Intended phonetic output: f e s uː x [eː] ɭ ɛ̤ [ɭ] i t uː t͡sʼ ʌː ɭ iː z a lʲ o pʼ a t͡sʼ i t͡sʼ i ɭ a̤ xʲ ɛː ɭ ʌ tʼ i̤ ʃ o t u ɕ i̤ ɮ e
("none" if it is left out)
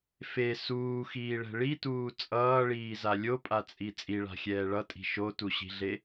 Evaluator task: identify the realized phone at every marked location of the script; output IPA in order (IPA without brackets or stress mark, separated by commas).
iː, ɭ